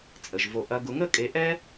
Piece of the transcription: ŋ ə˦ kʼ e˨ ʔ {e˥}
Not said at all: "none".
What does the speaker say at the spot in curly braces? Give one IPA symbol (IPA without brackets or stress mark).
ɛ˥